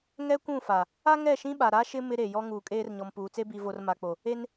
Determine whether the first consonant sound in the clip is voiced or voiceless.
voiced